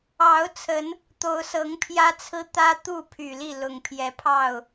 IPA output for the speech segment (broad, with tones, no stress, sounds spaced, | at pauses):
ɑ˨˦ ʊ̯ t͡sʰ ə˨˦ n | t̪ o˨˦ ʊ̯ s ɤ˨˦ ŋ pʰ j ä˦ t͡sʰ ɹ̩˦ t̪ ä˦ t̪ u˥˨ pʰ y˨˩ l i˥˨ l ʊ˨˩ ŋ pʰ j ɛ˨˦ pʰ ɑ˥˨ ʊ̯